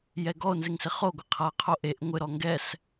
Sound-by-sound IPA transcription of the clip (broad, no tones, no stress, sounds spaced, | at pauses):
j ɛ ɡ ɔ o̯ n z ɪ ŋ s ɪ χ o ɡʷ ɪ qʰ a qʰ o ʔ e ʔ ŋʷ ɪ ɾ ɔ ŋ ɡ ɛ s